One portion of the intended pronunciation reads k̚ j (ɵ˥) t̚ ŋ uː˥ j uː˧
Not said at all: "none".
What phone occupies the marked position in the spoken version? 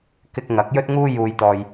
ɵ˥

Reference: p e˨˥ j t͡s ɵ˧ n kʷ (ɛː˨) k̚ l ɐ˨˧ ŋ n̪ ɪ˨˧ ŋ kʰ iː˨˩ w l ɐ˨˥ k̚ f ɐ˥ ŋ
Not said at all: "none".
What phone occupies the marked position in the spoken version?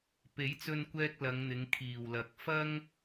ɛː˧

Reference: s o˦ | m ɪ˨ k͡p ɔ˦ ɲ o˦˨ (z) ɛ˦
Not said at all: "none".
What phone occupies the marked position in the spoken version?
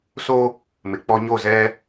z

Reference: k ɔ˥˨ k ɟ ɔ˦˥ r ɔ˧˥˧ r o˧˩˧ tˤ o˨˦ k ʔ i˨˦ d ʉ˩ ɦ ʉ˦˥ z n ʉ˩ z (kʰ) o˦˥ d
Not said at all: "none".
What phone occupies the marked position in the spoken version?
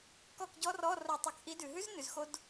x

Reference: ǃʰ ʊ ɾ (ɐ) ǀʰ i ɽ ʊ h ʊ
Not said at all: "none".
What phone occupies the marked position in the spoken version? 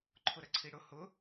ɐ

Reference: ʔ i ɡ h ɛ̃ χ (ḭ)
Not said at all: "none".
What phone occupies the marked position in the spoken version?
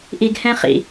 ḭ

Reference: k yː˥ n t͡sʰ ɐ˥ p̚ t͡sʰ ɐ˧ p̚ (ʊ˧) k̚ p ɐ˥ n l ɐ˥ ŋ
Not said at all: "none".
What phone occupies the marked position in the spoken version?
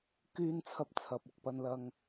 ʊ˧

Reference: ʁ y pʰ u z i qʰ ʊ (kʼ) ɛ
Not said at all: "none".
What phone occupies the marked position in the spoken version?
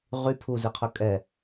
kʼ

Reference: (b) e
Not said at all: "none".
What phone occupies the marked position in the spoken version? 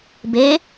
b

